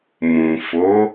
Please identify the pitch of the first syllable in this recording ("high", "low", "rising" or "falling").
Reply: low